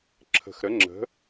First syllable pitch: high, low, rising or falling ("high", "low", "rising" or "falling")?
low